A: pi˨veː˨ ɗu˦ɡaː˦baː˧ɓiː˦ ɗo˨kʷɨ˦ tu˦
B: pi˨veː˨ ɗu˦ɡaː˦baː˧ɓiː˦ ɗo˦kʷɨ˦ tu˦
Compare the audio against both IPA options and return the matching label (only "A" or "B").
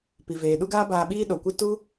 A